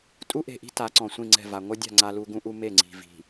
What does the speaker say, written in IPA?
tʼ u˦ ʔ e̤˨ ʔ i̤˦ t a˨˦ ǀ ɔ̃˨ sʷ ĩ˦˨ ŋ͡ǀ ɛ̤˦˨ v a˨ ŋʷ ʌ˦ dʲ a̤˦˨ ŋ͡ǀ a˦ l u˦ ɡ ũ˦ ʔ u˦ m e˦˨ ŋ͡ǀ i̤˨ v i̤˨

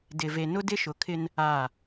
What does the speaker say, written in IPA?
d ɪ˨ v e˨ n ʊ˦ d ɪ˦ ʃ ʊ˨ kʰ ɪ˦ n | aː˦˨

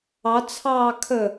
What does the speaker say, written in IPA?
ɑ t͡sʰ ɑː kʰ ə

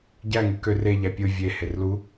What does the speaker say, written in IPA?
ɟ æ ŋ ɯ k ø r e ʎ æ pʲ ɯ vʲ e h e r l u

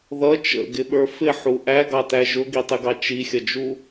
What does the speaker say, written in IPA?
ð ʌ t͡ʃ ə̰ ɡ ɪ ɓ ə˞ f ɪ ħ u ʔ æ ɡ ɑ t æ ʒ ʊ ɡ i tˤ ɪ ɡ ɑ t͡ʃ i xʲ ʌ d͡ʒ u

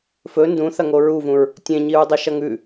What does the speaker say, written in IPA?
f ɵ n d ũ θ ɐ ŋ o ɹ u v ũ ɹ | tʲ ẽ ɲ i ɹ dˤ ɨ ʃ ɐ ŋ ʉ

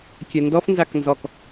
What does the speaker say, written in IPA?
kʲ ɛ n d ɔ f n z a k n z ɔ k

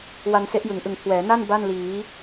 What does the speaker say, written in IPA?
w a˧ n s e˦˥ ʔ j ɯ˩˦ ŋ ʔ ɯ˨˩ ŋ kʰ w ɛː˩˦ n a˥˩ n b a˥˩ n l iː˩˦

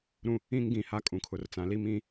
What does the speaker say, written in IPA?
ɾ ũ˦ | ĩ˦ ŋ ɡ ĩ˨ h a˦˨ kʼ ũ˨ kʰ ʊ˨ r t͡s ã˨ l i˦ m ĩ˦˨

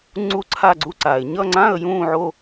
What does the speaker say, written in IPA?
ŋ͡ǀ u˥˧ ǀʰ a˥˧ ɡ͡ǀ u˥˧ ǀ a˩˧ ɪ̯ ɲ ʌ˥˧ ŋ͡ǀ ã˥˧ ə̯ j ũː˥˧ ʕ o˥˧

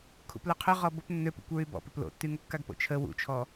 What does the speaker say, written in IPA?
kʰ ṵ p l œ qʰ ø ʁ ɔ b o p nː ø p ṵ kʷ ɹ y b ɔ̰ p ø p l o̰ tː y ŋ o kː a ɡ p o̰ t͡ʃʰ ə w ṵ t͡ʃʰ ɔ

